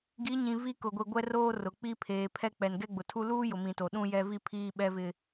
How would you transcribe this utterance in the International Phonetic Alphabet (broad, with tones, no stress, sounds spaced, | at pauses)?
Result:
ɡ i˨˦ ɲ ĩ˨ v i˦ k ʊ˨ ɡʷ i˨ ɡʷ ɛ˦ r oː˦ r ʊ˨ k͡p i˦ pʰ eː˨ pʰ ɛ˦ k͡p ɛ˨ n ɡ ɛ˦ ɡ͡b ʊ˨ tʰ u˦ l uː˦ j ʊ˨ m ĩ˨ t o˨ ɗ ũ˦ j ɛ˦ v i˦ pʰ iː˦ ɓ ɛ˦ v ɪ˦